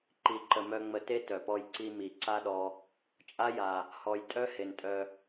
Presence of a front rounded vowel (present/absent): present